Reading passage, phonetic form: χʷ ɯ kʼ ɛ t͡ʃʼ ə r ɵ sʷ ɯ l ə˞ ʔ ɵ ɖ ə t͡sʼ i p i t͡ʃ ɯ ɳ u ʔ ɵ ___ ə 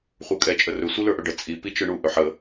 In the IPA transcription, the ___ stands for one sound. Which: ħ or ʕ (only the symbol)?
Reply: ħ